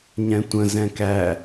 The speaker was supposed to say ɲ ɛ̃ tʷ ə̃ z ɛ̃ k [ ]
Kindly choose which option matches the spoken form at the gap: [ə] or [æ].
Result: æ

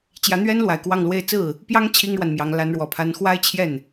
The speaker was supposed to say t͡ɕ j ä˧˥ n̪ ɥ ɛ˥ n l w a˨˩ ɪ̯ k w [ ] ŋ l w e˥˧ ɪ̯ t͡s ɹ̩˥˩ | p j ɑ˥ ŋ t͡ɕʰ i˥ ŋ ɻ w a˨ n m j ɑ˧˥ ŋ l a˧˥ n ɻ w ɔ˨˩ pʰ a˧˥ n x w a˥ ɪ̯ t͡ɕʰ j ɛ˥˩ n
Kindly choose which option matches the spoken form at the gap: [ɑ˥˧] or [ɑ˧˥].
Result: ɑ˥˧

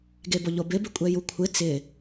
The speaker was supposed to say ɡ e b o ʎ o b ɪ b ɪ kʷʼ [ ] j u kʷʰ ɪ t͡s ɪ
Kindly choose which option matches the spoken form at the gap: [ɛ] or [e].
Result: ɛ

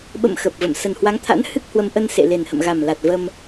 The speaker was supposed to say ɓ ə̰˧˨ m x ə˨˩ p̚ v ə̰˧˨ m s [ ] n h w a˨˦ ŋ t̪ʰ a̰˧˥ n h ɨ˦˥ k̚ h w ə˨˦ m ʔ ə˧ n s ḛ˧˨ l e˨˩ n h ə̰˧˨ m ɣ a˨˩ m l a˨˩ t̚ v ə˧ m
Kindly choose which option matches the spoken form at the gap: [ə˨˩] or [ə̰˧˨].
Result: ə˨˩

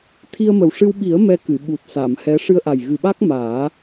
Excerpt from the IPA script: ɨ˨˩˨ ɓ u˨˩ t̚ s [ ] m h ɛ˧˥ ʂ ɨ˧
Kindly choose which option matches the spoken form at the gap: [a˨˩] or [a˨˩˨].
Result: a˨˩˨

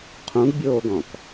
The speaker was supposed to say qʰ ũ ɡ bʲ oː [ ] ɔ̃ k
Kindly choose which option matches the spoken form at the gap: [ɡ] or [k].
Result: ɡ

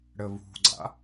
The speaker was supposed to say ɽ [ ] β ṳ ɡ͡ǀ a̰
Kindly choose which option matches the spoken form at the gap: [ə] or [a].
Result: ə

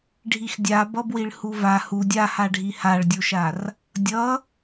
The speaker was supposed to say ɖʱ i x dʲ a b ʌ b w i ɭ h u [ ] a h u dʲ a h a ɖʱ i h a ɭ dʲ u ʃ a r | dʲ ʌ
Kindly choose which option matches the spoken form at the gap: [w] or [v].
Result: v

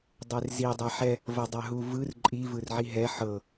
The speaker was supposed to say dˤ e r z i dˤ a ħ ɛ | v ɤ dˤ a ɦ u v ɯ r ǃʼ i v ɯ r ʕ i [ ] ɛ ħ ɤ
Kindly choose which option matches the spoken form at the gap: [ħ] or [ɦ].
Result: ɦ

